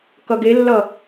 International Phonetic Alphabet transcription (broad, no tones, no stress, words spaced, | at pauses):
kʌɡelːʌ